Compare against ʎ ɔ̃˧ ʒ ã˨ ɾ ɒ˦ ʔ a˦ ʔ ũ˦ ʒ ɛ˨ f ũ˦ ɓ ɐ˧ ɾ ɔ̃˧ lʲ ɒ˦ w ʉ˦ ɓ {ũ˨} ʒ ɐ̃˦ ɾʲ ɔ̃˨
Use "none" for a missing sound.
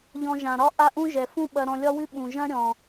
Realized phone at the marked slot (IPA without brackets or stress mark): ũ˨